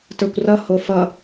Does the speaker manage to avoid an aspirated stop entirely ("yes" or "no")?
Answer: yes